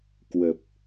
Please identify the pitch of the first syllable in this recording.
low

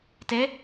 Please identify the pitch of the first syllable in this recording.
rising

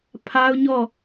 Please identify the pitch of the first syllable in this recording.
high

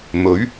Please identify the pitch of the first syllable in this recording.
rising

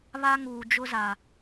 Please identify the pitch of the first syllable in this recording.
high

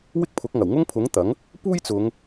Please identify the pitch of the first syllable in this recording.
high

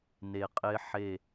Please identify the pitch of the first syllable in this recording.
low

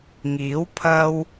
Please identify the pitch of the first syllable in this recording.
rising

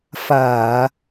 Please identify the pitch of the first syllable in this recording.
low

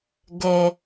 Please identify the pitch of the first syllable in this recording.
low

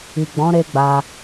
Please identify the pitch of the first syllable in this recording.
low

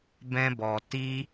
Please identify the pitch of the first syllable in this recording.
high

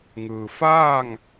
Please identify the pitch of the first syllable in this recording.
low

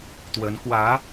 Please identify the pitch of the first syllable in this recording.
rising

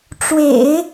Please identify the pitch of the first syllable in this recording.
low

